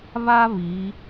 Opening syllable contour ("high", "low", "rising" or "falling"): high